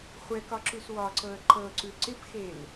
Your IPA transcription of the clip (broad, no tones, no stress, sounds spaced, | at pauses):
χʷ ɛ k ɒ ǁ ʉ s w ɒ ǀ ɤ ə̯ ǃ ɤ ǀ ʉ ǀ ɪ p x e l